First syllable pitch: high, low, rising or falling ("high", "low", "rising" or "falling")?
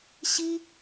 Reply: high